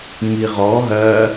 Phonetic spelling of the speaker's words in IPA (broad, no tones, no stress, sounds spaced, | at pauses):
m i ʁ ɔ ɦ ɜ